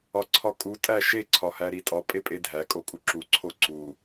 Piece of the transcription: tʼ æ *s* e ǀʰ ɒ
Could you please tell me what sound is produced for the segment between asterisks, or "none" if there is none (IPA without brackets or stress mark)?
ʃ